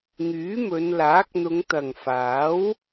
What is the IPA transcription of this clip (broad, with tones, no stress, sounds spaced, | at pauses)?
ŋ yː˨˥ m ɵ˨˧ n l aː˨˥ k̚ n̪ ʊ˨˧ ŋ t̪ ɐ˨ ŋ f aː˨˥ w